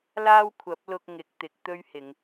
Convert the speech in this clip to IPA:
l aː˥ w kʷʰ ɐ˨˥ p̚ l ʊ˧ k̚ ŋ ɪ˨˥ k̚ t̪ ɪ˨˥ k̚ t̪ ɵ˥ ɥ h ɪ˨˧ ŋ

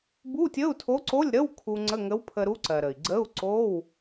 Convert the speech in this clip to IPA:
b u˧˥˧ tʲ ə˧˥˧ u̯ tʰ o˧˥ ǀ o˧˥˧ lʲ ɾ ə˧˥˧ w kʰ u˧ ŋ͡ǀ ə˧˥˧ ŋ ə˧˥ w pʰ ə˧ ɾ u˧˥ ǀ ɜ˩ ɾ ə˩ i̯ ɡ͡ǀ ə˧˥˧ u̯ ǀ o˧˥˧ w

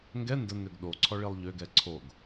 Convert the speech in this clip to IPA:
ŋ ɡ ɛ n d ə n ø ɡ ɗ o ǀʰ ɔ ɭ i lˠ ʎ ø ɡ ɛ ǀʰ o ɡ

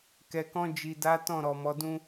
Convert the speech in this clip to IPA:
k ɛ˨ k ɔ̃˧ d͡ʒ i˨ d a˨˦ t ɔ̃˦˨ ɾ ɔ˨ m ɔ˨˦ d ũ˦

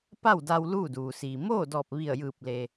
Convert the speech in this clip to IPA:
p a˥˨ w d a˧ w l uː˥˨ d uː˩ s iː˩ m oː˥˨ d ɔː˧˩ p̚ ʋ i˧˩ ə̯ j ɯː˧˩ p̚ l e˩

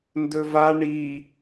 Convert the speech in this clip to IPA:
n d ɵ v a ɳ i

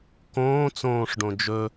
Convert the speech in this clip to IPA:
k õː t͡s õː ʂ ɖ õ d͡ʒ ɵ

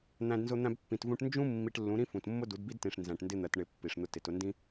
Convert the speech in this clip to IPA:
n̪ æ̃˧ d n z ʊ˧ n̪ æ̃˧ b pː ĩ˨ t v ũ˧ ʈ n d͡ʒ ũ˦ mː i˧ ʈ lː ũ˨˦ ɾ ĩ˦ f ũ˨ t mː ʊ˦ d u˨˦ d b i˦ d t ĩ˨ ʂ n z æ̃˨ ʈ n d ɪ˧ n̪ ɜ˨ t ɳ ɪ˨ pː i˨ ʂ n̪ ʊ˧ t ɪ˨ t ʊ˧ n d ĩ˦

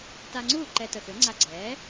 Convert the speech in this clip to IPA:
t a˧ ŋ͡ǀ uː˥˩ ǃ ɛ˧ t ə˩ x ø˩˥ ŋ͡ǀ a˧ ɡ͡ǀ ɛː˩˥

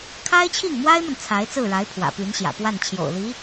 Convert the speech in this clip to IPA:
kʰ a˥ ɪ̯ t͡ɕʰ i˥˩ ŋ m w a˥ ɪ̯ m ə˨ n t͡sʰ a˧˥ ɪ̯ t͡s ɹ̩˥˩ ɻ a˧˥ ɪ̯ pʰ w ä̰˨˩ p y˧˥ n ɕ j ä̰˨˩ p w a˥˩ n t͡ɕʰ j o̰˨˩ ʊ̯ l i˧˥

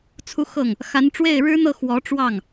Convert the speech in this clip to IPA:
t͡sʰ u˥˧ x ɤ˥˩ ŋ | x a˧˥ n ʈ͡ʂ w e˥˩ ɪ̯ ɻ ɻ̩˥ n̪ ɤ˥˩ x w ɔ˧˥ ʈ͡ʂ w ɑ˥˩ ŋ

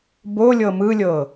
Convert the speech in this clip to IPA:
b o lʲ ɤ m ɯ lʲ ɤ

